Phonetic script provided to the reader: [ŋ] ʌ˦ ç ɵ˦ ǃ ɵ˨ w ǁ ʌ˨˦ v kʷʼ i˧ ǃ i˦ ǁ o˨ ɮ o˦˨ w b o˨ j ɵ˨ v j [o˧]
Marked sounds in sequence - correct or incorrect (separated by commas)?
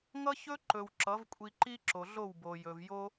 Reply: correct, incorrect